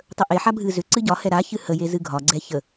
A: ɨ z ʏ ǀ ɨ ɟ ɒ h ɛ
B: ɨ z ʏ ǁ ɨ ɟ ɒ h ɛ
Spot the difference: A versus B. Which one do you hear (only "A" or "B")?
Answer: A